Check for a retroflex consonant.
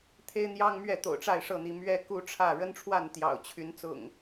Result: present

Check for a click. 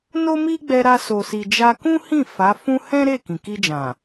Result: absent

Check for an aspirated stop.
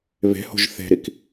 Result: absent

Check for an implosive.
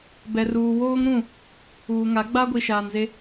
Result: absent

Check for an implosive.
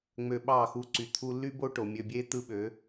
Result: present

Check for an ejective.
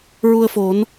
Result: absent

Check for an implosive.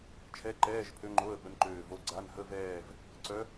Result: present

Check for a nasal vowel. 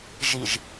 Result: absent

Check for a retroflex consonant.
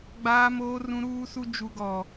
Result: absent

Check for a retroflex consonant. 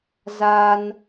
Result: absent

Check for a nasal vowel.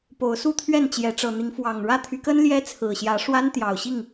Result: absent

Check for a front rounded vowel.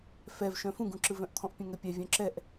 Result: present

